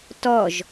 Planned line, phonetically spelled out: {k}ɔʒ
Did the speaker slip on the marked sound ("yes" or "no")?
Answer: yes